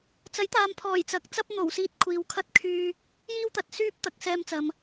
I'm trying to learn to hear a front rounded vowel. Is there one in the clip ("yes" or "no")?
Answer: yes